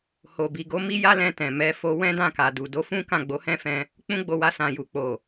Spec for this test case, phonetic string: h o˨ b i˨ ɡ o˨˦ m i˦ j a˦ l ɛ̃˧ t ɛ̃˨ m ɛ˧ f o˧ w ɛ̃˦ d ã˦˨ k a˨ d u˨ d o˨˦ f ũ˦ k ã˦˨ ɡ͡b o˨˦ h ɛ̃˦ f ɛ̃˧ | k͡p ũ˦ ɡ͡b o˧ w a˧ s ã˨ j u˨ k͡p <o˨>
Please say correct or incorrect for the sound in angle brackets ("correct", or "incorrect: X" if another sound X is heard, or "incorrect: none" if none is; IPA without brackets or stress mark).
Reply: correct